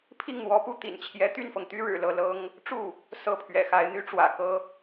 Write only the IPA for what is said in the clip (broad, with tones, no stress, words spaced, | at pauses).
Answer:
pʰi˥˩ŋn̪wɔ˧˥pu˥˩ t̪ḭ˨˩nt͡ɕʰjɛ˧˥ t̪y˥˩nfɤ˩ŋt̪y˥ ɻɻ̩˨˩lɤ˥˩lɤ˥ŋ | ʈ͡ʂu˥˩ | sɤ˥˩pʰɥɛ̰˨˩xa˧˥ɪ̯ n̪y˧˥ʈ͡ʂwä̰˨˩kɤ˥